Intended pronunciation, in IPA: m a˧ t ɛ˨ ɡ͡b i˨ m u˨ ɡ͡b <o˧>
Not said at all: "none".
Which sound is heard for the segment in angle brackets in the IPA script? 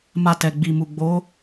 o˨˦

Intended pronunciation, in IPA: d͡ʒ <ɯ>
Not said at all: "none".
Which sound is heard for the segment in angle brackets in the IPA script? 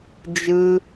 ɯ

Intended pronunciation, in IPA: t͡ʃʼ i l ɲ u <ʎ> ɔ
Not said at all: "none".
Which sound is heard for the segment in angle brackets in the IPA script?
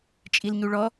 ɭ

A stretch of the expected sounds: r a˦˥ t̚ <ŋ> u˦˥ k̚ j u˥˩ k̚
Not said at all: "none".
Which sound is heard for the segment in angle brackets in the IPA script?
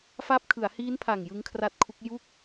kʰ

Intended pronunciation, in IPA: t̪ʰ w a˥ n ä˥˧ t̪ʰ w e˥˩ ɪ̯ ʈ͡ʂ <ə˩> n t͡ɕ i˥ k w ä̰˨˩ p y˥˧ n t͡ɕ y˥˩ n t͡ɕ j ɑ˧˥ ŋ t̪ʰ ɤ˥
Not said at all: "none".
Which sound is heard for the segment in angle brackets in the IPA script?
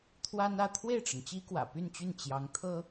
ə˩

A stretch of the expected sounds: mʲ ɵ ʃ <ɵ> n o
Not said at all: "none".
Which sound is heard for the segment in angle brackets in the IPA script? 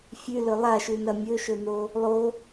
ɵ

